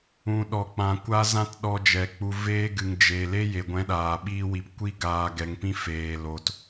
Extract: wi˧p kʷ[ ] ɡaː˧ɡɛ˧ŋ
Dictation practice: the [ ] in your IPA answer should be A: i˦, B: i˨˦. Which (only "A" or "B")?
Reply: A